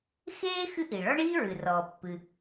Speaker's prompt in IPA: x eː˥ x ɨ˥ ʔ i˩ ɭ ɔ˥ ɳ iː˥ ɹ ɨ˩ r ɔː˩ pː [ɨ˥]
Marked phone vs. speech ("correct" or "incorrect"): incorrect